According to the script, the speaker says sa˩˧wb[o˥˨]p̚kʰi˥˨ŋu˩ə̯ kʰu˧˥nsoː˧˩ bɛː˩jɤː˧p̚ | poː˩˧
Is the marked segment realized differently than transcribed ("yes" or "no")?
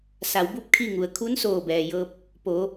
yes